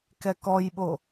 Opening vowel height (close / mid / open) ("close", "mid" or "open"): mid